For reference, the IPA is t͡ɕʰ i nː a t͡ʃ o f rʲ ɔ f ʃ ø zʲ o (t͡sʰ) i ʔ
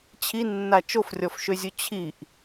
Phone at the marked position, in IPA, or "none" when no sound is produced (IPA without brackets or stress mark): t͡ɕʰ